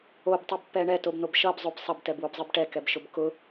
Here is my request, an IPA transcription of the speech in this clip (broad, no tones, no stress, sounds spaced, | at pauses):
o b tˤ i b pː ɛ ɳ ɛ t o b n̪ o b ʃ ʌ b zˤ o b sˤ ʌ b t ɛ b w o b zˤ ɘ b ʈ ɛ k ɛ b ʃ ʊ b k ʊ